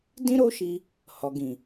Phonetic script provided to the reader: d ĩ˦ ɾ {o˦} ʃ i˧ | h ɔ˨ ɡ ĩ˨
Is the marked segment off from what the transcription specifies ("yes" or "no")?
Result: no